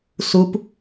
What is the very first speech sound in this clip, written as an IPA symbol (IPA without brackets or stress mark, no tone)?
s